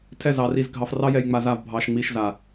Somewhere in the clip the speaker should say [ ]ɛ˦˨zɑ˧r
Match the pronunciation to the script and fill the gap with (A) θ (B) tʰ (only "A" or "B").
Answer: B